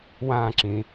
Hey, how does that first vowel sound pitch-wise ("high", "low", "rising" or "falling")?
falling